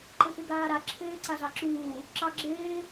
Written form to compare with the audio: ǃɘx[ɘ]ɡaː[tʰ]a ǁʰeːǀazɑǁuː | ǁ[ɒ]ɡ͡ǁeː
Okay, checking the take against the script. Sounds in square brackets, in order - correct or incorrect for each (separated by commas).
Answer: incorrect, incorrect, incorrect